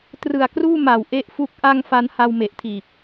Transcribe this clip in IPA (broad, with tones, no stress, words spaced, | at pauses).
trɯ˨˩a̯kruː˥˩ma˨˩w ʔe˦˥ʔfu˦˥k̚ ʔa˥˩ŋfa˦˥n ha˧wme˨˩ʔtʰiː˨˩p̚